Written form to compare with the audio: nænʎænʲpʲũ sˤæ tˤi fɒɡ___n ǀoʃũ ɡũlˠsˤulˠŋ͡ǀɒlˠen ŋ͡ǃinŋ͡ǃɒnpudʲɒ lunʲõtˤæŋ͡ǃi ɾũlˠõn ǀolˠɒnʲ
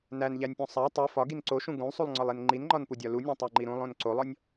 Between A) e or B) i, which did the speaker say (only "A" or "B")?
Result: B